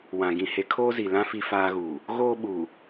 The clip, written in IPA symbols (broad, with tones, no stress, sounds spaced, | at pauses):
w ã˨ ɡ ĩ˨ h e˨ kʰ oː˦ z i˨ l ã˦ f i˦ f aː˦ ɣ uː˨ | ɣ oː˦ ɓ u˨